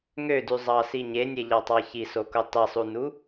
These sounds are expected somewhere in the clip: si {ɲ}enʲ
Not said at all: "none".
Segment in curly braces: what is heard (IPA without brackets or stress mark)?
ɲ